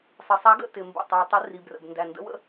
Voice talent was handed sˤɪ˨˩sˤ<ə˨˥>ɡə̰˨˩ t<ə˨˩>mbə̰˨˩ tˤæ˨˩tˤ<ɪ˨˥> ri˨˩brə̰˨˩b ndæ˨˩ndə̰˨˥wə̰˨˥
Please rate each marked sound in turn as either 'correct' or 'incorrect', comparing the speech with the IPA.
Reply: incorrect: æ˨˥, incorrect: ɪ˨˩, correct

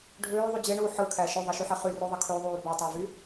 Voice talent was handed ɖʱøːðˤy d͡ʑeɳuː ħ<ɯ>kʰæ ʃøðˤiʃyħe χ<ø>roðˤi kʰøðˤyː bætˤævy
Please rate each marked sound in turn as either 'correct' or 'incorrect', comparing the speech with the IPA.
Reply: correct, incorrect: y

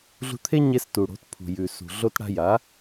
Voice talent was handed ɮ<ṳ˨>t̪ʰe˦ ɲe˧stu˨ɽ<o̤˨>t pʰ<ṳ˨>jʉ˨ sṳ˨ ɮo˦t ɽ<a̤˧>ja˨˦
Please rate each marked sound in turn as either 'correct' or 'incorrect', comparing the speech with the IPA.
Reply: incorrect: ṳ˧, incorrect: o̤˨˦, correct, correct

